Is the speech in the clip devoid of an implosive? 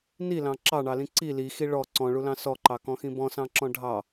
yes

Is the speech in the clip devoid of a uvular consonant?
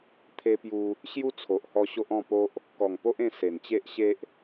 yes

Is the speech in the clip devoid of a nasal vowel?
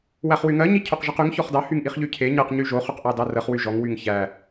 yes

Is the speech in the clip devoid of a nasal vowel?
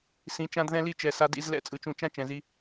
no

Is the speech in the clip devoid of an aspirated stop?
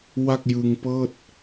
yes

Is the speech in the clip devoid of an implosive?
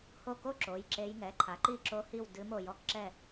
yes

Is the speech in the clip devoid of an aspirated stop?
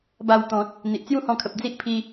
no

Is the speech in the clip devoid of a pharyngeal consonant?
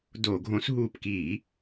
yes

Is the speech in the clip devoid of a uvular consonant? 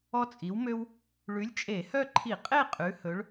no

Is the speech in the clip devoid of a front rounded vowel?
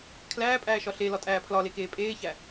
yes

